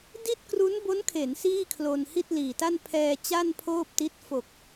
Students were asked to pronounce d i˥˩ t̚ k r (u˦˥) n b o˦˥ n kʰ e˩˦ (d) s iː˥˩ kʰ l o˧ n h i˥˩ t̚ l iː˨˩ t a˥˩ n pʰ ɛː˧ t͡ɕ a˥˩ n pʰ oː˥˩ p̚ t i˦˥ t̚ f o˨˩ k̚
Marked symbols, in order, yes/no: yes, no

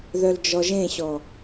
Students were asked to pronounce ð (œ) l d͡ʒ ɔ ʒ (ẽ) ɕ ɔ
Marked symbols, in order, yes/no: yes, yes

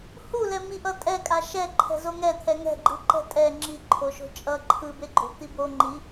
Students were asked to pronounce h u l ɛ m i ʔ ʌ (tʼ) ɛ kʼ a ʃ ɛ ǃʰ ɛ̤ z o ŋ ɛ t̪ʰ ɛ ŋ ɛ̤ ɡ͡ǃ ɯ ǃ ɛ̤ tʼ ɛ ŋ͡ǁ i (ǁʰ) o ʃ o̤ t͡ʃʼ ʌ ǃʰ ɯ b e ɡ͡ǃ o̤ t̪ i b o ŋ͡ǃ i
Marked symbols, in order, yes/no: yes, no

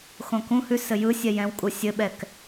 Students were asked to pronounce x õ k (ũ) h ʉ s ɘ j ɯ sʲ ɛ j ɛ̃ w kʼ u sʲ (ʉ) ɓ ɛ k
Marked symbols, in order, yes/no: yes, no

